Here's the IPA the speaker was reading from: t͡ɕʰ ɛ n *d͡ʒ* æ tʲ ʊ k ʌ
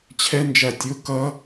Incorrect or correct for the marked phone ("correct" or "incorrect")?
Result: correct